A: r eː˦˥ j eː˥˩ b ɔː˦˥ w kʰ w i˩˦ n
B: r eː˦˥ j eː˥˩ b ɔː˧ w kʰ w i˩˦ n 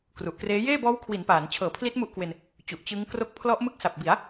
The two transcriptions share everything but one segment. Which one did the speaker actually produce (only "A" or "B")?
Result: A